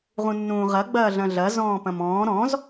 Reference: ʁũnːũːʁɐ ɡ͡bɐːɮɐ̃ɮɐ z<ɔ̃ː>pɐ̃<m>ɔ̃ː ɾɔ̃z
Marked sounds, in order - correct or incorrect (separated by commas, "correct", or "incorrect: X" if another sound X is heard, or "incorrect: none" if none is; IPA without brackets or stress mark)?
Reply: correct, correct